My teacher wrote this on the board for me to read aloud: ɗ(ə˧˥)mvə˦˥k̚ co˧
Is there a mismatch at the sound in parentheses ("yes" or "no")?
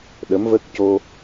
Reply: no